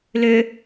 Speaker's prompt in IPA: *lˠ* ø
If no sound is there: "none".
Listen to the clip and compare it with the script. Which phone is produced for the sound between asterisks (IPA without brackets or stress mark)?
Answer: l